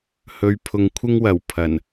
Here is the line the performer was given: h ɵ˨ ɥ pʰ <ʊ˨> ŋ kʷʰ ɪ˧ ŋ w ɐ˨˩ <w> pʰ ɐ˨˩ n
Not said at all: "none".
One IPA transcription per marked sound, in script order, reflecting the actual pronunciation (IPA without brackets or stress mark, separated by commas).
ʊ˨, w